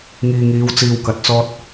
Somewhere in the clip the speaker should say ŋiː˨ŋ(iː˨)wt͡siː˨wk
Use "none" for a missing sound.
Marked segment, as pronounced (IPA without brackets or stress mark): iː˨˧